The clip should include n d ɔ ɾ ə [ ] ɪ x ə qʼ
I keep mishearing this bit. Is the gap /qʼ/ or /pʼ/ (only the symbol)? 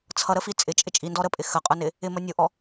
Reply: pʼ